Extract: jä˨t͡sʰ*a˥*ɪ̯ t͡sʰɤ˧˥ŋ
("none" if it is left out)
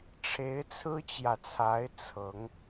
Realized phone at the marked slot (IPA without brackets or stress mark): a˧˥